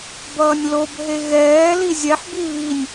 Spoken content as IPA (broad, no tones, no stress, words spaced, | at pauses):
bʌːnʲlob ɦeɣɛː lizʲɛħbi βinʲ